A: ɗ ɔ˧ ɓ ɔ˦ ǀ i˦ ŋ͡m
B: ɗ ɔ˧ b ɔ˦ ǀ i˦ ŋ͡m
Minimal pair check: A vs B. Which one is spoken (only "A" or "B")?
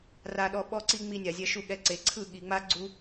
A